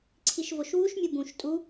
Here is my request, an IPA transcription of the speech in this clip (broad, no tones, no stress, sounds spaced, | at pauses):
ǀʰ i ʃ v o ʃ w u ʃ mʲ u b ũ ʃ tʼ u